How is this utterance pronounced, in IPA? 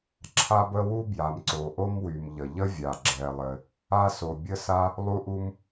ǁʰa˥bə˥ wu˥ bja˩mǀo˩ʔo˥mwy˩m ʎə˩ ʎə˥vʲa˩ ɡ͡ǁɛ˩lˠɘ˩ | a˥so˩ bʲə˥sa˥ | lˠu˥ʔu˥m

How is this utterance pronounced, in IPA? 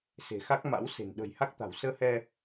se̤˨˩xa˦˥k̚ ma̰˧˥w se̤˨˩n ɗə̤˨˩j ha˦˥k̚t̪a̤˨˩w səː˧hɛ˧

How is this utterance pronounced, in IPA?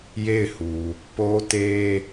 je˦˨ɪ̯hu˨ | po˦te˦

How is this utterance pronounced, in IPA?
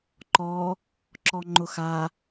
ǃɔ | ǁɔŋ͡ǃʊxa

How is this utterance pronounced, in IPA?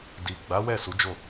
di˨ɡ͡ba˨˦wɛ˦˨ su˨˦d͡ʒo˦˨

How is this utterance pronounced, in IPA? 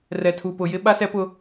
rɛ˨tʰu˨pʊ˨jɪ˦ ɓa˦sɛ˦pʊ˦

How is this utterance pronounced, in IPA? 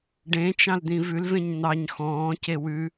ɖẽt͡ʃɑ̃ld̪ĩ vʉlvẽɲ n̪ɑɲ xɔ̃ːce wʉ

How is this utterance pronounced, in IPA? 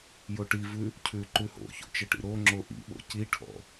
joʈivʉ | cʰʉ ǃʉho̰ço̰ t͡ʃəʈḭɾoŋ͡ǁo ʔḭɓo̰ ciʈʰɔ̰

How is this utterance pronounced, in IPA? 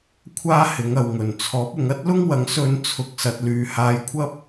kʷʰaː˥hɪ˨˥ŋɐ˨w ŋɵ˨˩n t͡sʰɔː˨˥p̚ʊ˨˧ŋ ɐ˥t̚lʊ˥ŋwɐ˨˥ŋ sɵ˨˧n t͡sʰʊ˨k̚sɐ˨t̚ lyː˨haː˨˧jkʷʰɐ˥p̚

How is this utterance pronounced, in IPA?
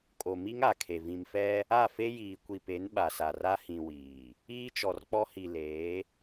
kʼo˨mi˦ŋa˨kʰe˨ vĩ˨mfɛ˦ | a˦˨fe˦jiː˨ kʷi˨pe˨˦n ɓa˨sa˨ra˦ hĩ˨ wiː˨ | iː˦t͡ʃɔ˨rk͡pɔ˦ hi˨leː˨˦

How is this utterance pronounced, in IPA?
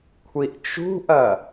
kʷʰiʔt͡ʃṳʔɐ

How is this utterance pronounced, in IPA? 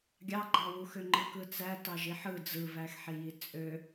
ɡʲɑɡ͡ǃɑwuxø ŋ͡ǃɯkɯt͡sæ tɑʒiħɯ d͡zɯvæxħiji t͡sʼø

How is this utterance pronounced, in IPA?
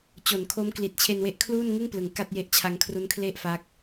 t͡ɕo˩˦nkʰo˦˥m kli˨˩t̚t͡ɕʰe˧nwe˦˥ʔ kʰluː˥˩nŋɯ˥˩ŋplɯ˩˦ŋ ka˥˩t̚je˦˥ʔ t͡ɕʰa˧ŋkʰru˦˥nkʰle˥˩ʔfa˦˥k̚

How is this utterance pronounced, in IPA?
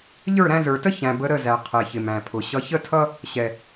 ʎə˞˦˨ɾæ̃˧zə˞˨tə˦ çæ̃˨ bə˧ɾə˦˨zæ˨ qʰɛ˨çɪ˨mæ̃˨pʰʊ˨ ɕʌ˧ çə˦tʰʌ˦ | ɕɛ˨

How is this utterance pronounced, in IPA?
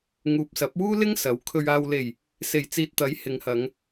ŋuː˨p̚sɐ˨˥p̚wuː˥lɪ˥ŋ sɐ˨˥w kʰɵ˨ɥaː˨wle˨˩j | se˨˩jt͡siː˨t̚t̪ɐ˨˥j hɪ˨˧ŋhɐ˨˧ŋ

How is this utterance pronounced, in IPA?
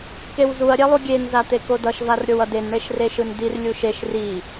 kewzuɐ̯ ɾʲɛlˠuɡʲen zat̪ekodʌʃ varɾʲowʌden ɳeʃreʃɯndir lʲuʃeʃ ri

